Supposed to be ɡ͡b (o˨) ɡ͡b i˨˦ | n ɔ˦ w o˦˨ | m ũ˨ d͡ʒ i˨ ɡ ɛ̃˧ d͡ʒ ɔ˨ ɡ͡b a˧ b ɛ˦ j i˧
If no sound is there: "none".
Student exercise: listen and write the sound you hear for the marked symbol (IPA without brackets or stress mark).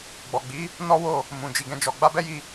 ɔ˨